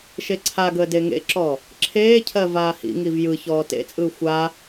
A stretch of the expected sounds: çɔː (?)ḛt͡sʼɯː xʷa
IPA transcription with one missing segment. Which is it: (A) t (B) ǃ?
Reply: A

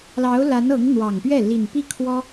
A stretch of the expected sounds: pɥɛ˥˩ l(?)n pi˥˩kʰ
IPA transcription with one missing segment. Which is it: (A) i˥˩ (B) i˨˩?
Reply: B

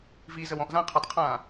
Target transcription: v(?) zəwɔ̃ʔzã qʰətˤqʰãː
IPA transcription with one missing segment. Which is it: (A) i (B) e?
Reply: A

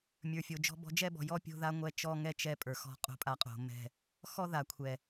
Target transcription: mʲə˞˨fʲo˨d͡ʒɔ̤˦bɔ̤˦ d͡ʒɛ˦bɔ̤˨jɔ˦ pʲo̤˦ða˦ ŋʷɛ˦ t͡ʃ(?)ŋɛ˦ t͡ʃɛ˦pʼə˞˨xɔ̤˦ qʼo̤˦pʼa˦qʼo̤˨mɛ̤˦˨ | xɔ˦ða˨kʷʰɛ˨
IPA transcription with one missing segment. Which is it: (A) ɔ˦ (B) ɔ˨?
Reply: A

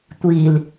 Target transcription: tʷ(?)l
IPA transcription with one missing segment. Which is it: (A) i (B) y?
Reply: A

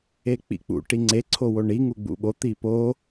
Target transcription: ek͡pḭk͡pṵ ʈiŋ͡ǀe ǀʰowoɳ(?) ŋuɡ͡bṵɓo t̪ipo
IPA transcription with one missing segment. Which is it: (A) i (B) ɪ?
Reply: A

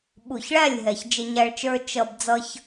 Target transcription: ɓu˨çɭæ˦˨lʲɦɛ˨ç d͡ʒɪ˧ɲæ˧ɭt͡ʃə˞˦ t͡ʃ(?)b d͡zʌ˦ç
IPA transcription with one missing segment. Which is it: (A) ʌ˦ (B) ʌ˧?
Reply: B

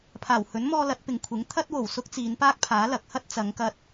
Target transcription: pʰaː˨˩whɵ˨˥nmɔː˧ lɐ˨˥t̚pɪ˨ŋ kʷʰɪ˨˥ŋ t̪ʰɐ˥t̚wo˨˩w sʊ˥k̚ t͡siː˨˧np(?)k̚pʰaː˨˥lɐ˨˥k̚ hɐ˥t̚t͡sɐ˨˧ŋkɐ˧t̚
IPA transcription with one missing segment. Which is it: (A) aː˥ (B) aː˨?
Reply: A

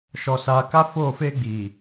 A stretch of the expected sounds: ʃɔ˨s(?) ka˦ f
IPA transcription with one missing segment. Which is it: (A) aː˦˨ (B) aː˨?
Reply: B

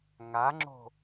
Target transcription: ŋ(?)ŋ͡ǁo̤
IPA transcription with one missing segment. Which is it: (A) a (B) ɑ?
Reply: A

